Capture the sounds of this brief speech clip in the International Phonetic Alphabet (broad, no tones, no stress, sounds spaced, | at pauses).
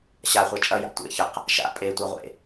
ɕ a χʷ a t͡ʃʼ ɐ j a̰ tʷ ḛ ç ə q | ʃ a̰ pʼ e tʷ a ʁʷ ḛ